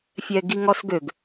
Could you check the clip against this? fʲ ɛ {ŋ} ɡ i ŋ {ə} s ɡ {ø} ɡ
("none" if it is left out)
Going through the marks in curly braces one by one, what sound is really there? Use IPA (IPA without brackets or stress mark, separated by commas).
none, ɔ, ø